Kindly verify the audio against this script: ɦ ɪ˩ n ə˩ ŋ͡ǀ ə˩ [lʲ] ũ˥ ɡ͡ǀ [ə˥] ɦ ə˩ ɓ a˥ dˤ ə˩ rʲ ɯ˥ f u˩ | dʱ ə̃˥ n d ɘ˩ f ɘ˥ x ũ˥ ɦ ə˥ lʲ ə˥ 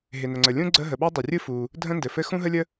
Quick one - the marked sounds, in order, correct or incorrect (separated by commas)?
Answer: correct, correct